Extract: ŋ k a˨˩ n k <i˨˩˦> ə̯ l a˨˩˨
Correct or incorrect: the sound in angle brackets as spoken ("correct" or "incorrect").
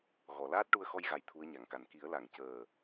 correct